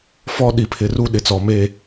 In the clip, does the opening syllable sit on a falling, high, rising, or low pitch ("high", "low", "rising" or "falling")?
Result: high